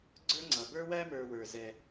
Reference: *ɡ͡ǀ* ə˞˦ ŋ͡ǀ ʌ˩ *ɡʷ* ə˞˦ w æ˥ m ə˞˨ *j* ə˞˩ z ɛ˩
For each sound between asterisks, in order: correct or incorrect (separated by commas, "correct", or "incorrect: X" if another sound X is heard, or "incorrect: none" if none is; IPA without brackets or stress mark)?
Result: correct, incorrect: b, incorrect: w